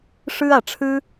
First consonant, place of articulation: retroflex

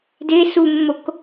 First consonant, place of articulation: alveolar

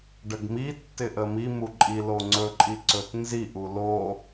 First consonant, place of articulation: retroflex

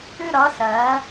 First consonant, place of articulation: alveolar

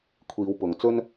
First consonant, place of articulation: velar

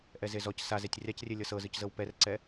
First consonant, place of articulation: glottal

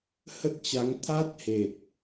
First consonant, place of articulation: glottal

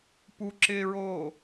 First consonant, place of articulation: labial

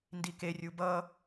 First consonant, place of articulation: alveolar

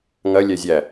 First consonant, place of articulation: velar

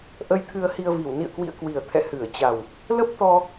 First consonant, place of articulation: glottal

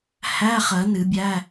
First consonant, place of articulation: glottal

